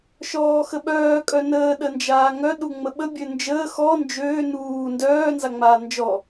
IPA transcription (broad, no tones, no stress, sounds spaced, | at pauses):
ʃ ɔː x ə ɓ œː kʼ œ n əː ɗ ə n d͡ʒ aː ŋ œ ɗ u ŋ͡m ə ɓ ə bʲ ø n d͡ʒ əː x ɔ n d͡ʒ øː n uː n d œː n z a ŋ͡m aː n d͡ʒ ɔ